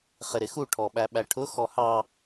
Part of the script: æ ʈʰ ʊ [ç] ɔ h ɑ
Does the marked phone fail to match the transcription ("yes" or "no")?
yes